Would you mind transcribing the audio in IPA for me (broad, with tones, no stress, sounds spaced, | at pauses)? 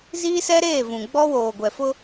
z iː˦ s ɛ˦ ɾ eː˦˨ v ũ˨ ɡ͡b ɔ˦ w oː˨ ɡʷ ɛ˨ f ʊ˦